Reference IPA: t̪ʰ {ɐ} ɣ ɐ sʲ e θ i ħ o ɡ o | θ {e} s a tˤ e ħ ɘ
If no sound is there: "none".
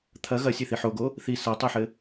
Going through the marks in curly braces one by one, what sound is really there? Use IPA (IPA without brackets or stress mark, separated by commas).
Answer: ɐ, i